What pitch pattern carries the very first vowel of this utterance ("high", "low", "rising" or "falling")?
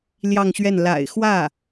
falling